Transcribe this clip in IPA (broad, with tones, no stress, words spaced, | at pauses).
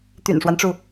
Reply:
t̪y̰˨˩nʂwa˦nʈ͡ʂu˩